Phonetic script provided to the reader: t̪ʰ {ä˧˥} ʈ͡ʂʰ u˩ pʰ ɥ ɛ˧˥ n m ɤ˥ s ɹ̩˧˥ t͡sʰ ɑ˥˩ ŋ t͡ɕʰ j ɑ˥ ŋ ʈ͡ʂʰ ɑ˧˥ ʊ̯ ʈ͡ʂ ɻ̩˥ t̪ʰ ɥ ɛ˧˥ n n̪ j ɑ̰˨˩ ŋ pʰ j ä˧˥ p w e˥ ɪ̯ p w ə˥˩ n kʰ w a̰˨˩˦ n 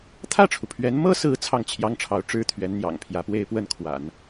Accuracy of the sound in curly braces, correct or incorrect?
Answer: incorrect